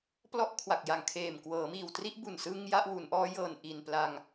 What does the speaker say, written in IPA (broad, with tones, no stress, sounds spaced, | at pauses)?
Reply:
p l ɔ˥˩ ʔ kʰ w a˨˩ k̚ j a˨˩ ŋ kʰ eː˨˩ m k w ɤː˩˦ m iː˨˩ w t r i˥˩ ʔ b u˨˩ n s ɯ˧ ŋ j a˥˩ ʔ w u˩˦ n ʔ ɔː˦˥ j ɤː˨˩ n ʔ i˨˩ n p l a˧ ŋ